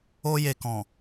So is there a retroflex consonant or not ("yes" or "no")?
no